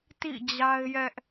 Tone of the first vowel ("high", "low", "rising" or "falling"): falling